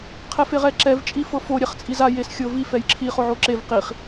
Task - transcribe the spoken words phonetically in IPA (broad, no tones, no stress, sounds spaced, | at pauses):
qʰ ɛ f e ʁ ɛ ǁ ɛ v t͡ʃʼ i f ɤ f o ɾʲ ɛ χ t͡sʼ i z a j e s xʲ ɤ v i f ɛ j ǁʰ i χ o ʕ o ǁ e v q i χ